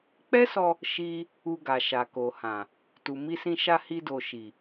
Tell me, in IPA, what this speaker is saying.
k͡p ɛ˦ s ɔ˧ | ʃ i˧ | u˧ ɡ a˨ ʃ a˨ k o˨ h ã˨ | t u˨ m i˧ s ĩ˧ ʃ a˧ h i˧ d o˨ ʃ i˨

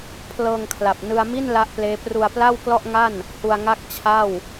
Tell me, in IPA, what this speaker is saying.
pʰ l ɤː˧ ŋ kʰ l a˨˩ p̚ n ɯ˧ a̯ m i˥˩ n l a˦˥ ʔ p l eː˦˥ p r u˧ a̯ p l a˥˩ w k l ɔ˥˩ ʔ ŋ a˥˩ n | h u˧ a̯ ŋ a˥˩ k̚ t͡ɕʰ a˥˩ w

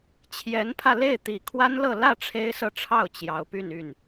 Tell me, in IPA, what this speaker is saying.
t͡ɕʰ j ɛ˧˥ n pʰ ä˧ l e˥˩ ɪ̯ t̪ i˨˩ kʰ w a˥ n l ɤ˥˧ l ä˥˩ ʈ͡ʂʰ e˥ ɪ̯ s ɤ˥˧ ʈ͡ʂʰ ɑ˥˩ ʊ̯ t͡ɕ j ɑ˧˥ ʊ̯ p y˥˧ n y˥˩ n

